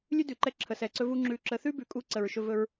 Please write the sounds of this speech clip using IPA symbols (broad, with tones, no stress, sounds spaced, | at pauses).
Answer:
lʲ ʉ˦ d ʉ˨ ǃ ɛ˧ ǁʰ ə˨ s ɛ˨ ǀ ɵ˧ v u˧ ŋ͡ǁ ʉ˧ ǁ ə˧ θ ʉ˦ b ʉ˨ kʼ u˧ ǀ ə˨ ɹ ʃ ɵ˧ v ɵ˧ ɹ